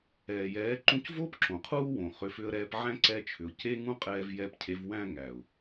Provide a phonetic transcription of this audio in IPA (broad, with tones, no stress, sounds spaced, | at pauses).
ɛː˨ j ɛː˨˦ ǃ ũ˧ c v oː˦ p ǁ õ˨ qʰ uː˦ w õ˨ χ ʏ˨˦ f ʏ˧ ə̯ ɾ ɛː˧ p ʕ æ̃˦ ǀ ɛ˧ t͡ʃʰ ʏ˨ ʊ̯ c e˦ ŋ ũ˦ qʼ ɛː˧ v j ɛ˧ p cʰ e˨˦ v w æ̃˧ ŋ æ˨ ʊ̯